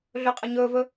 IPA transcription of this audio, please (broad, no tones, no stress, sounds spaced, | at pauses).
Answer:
ɮ ɵ qʼ ə ɲ ɵ v ɵ